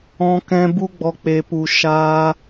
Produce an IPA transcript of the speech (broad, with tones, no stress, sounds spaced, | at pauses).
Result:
ɔ̃˧ k ɛ̃˧ b u˦ ɡ͡b ɔ˧ k͡p e˧ p u˧ ʃ aː˧